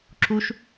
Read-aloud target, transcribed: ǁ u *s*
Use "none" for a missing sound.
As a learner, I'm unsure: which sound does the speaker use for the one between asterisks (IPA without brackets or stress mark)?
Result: ʃ